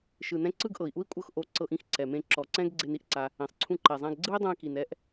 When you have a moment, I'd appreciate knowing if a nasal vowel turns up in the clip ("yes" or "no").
yes